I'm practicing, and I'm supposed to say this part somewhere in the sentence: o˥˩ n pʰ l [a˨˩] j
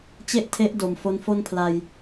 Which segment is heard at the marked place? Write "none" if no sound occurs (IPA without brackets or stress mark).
a˧